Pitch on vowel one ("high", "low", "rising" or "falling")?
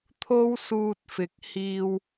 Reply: high